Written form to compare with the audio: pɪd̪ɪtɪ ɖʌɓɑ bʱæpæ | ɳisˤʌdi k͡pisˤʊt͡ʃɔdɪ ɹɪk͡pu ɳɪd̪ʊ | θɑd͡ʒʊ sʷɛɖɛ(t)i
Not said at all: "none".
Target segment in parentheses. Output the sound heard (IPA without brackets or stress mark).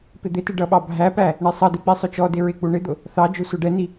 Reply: n